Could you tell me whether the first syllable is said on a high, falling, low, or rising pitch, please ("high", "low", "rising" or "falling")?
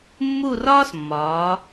falling